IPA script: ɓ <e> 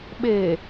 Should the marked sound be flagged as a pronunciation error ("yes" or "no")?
no